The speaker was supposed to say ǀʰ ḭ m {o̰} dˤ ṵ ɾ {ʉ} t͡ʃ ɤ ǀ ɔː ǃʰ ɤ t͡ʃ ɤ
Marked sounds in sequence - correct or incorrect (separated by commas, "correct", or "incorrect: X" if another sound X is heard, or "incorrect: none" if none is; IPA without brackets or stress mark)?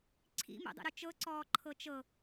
incorrect: ṵ, incorrect: u